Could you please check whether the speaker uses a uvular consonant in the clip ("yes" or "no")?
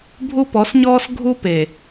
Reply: no